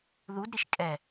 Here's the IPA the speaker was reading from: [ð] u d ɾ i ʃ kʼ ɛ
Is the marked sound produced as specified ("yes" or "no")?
yes